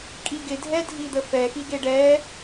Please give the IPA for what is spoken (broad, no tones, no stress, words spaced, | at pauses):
kʼiɡɪ dʱɛdʱid̪əfɛ xiɡeɖɛ